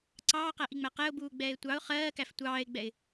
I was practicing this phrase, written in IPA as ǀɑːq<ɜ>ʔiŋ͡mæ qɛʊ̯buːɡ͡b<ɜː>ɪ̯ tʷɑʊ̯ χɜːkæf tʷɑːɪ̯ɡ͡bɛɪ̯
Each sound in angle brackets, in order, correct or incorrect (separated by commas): incorrect, incorrect